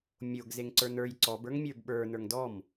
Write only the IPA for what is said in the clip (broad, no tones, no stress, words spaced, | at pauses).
mʲoɡzeŋ ǀə˞nə˞j ǀɔbə˞ŋmʲə˞b ɓə˞ nə˞ŋdɔm